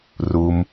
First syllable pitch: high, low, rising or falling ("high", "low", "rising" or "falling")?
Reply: low